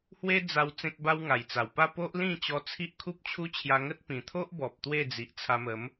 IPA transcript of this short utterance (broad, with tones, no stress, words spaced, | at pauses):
hwe˦d͡za˧w t͡sẽ˦k̚ba˦wŋa˨˩jt͡sa˨˩w pa˥˧ po˦ʔlĩ˥˧t͡ɕɔ˧ t͡sʰi˦ʔkʰu˦p̚t͡ɕʰu˦ t͡ɕʰja˧ŋə˦t̚pĩ˨˩ t̪ʰo˦ʔbɔ˨p̚ t̪we˥˧d͡zi˨ʔt͡sʰa˧mə˨˦m